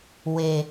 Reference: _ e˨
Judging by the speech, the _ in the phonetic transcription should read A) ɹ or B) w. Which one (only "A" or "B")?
B